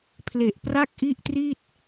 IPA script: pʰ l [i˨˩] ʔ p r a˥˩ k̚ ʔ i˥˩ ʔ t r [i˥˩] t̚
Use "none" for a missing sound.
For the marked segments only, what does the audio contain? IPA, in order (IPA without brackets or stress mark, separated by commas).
e˨˩, i˥˩